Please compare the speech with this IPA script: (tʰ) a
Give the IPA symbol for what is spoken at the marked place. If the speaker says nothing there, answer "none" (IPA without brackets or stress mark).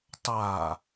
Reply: tˤ